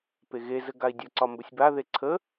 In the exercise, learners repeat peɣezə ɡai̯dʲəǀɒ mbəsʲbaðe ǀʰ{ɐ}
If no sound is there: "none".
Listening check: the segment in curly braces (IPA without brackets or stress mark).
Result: ə